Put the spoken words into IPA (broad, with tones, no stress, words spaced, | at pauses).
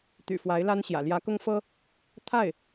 t̪y̰˨˩fwa˧˥ɪ̯la˥nɕjä̰˨˩ ljä˧˥kʊ˥ŋfɤ˥ | t̪ʰa˥˩ɪ̯